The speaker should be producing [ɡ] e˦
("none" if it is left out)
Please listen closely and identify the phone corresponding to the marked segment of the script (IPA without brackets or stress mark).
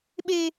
ɓ